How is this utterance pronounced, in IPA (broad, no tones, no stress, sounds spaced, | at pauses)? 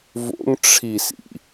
v o̰ ŋ ʈ͡ʂʰ i s ḭ